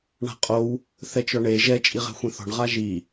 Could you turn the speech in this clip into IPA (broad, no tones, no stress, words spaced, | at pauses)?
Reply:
ɳa̤qʼow | θɛt͡ʃɔɳe ʒɛ t͡ʃʼiʁɛ̤xʷẽθɔ̤ɳ ʁaʒi